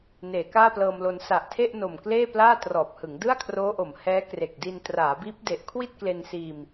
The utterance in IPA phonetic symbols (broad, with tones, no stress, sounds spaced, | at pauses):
n eː˩˦ k aː˥˩ p l ɤː˧ m l o˧ n s a˨˩ ʔ tʰ e˥˩ ʔ n o˨˩ m k l eː˥˩ p l aː˥˩ t r ɔː˨˩ p̚ h ɯ˩˦ ŋ d ɯ˥˩ a̯ kʰ r oː˦˥ ʔ o˩˦ m h ɛː˦˥ k r e˨˩ k̚ d i˧ n t r aː˩˦ b iː˦˥ p̚ d e˦˥ ʔ kʰ w i˥˩ t̚ k l e˧ n s iː˧ m